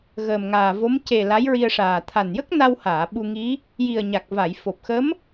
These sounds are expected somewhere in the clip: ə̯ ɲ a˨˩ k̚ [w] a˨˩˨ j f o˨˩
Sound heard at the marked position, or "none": v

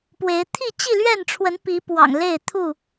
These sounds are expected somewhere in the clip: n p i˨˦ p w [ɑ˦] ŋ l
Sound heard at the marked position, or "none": ɑ̰˨˩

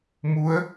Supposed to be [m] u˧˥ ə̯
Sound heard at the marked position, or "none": m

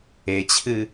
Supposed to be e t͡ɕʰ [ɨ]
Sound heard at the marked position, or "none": ɨ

